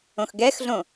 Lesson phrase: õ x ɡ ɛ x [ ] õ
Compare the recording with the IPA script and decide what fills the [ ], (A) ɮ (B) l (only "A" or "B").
A